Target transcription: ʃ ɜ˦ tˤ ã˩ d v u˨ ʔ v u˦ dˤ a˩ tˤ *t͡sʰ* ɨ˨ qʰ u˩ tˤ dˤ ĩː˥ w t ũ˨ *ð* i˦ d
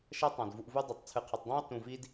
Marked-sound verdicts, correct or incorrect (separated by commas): correct, incorrect